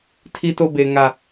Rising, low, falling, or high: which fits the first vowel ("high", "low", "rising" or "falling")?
high